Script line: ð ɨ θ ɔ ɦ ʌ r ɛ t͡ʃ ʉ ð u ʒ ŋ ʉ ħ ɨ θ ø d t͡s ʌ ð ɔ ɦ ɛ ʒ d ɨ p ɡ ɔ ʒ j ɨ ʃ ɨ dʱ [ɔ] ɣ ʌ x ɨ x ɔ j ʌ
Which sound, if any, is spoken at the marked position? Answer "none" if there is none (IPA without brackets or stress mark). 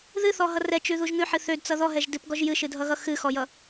ʌ